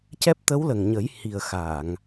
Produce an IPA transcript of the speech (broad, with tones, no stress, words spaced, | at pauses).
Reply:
cɛ˦˥p̚ t̪ə˧˥wlə˨˩ŋɲə˨˩˦j hi˨˩ə̯xa˨˩˨ŋ